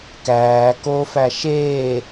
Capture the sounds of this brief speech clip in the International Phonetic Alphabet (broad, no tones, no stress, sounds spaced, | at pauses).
k æː k o f æ ʃ eː